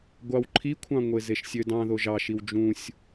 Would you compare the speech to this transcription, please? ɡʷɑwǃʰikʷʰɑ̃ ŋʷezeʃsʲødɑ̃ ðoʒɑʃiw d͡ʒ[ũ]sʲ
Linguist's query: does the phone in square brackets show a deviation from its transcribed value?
no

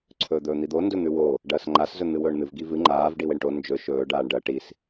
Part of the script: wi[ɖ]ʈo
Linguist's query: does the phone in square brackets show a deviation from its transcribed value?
yes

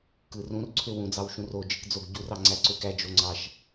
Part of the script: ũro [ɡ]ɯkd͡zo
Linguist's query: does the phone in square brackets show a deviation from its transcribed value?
yes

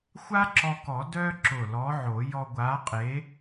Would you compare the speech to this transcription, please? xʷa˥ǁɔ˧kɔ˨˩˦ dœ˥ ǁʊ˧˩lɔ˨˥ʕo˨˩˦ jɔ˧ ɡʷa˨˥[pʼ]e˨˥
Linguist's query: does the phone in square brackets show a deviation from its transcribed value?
yes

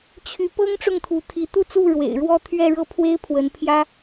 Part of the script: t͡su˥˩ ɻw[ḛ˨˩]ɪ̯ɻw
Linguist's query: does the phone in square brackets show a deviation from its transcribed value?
no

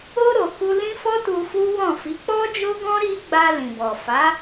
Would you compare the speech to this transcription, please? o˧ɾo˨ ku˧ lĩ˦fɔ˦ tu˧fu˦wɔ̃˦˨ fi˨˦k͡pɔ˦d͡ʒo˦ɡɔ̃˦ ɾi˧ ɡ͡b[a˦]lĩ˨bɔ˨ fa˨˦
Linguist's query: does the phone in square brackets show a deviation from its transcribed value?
yes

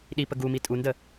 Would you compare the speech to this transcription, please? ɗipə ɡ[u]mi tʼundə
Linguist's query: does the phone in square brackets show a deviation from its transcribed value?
no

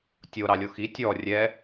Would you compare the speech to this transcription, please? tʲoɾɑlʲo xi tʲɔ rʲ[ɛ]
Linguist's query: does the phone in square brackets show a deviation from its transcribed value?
no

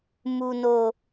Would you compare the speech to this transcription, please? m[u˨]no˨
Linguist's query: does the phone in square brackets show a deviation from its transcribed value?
no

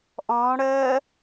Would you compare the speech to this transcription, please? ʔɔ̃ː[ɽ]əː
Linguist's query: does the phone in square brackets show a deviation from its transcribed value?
no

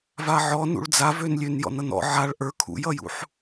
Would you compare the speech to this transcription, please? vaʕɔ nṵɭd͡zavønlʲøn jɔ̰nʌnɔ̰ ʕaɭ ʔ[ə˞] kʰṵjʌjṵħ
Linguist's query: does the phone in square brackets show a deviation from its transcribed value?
no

